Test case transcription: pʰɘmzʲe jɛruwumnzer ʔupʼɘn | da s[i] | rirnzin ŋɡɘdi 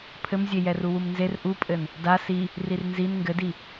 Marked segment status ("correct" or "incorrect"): correct